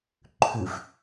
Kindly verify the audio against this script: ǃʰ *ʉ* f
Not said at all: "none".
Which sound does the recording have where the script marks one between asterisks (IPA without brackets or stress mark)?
ʉ